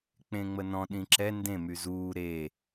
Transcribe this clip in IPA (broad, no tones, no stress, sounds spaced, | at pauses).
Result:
k͡p ẽ ŋ͡m ə n ɔ̃ ɗ ĩ ǁ ɛ n d ẽ m y z uː ɾ e